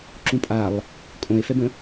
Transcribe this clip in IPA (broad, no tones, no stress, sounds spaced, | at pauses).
ǁ ũ pʼ a lˠ | kʼ õ e̯ f ɛ b ə̃